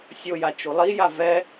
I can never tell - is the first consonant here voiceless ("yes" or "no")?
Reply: yes